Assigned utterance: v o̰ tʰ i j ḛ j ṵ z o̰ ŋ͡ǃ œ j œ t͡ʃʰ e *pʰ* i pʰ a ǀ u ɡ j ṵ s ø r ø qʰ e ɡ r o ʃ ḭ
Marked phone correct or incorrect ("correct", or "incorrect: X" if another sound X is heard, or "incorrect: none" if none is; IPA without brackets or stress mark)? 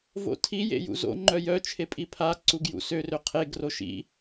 incorrect: pʼ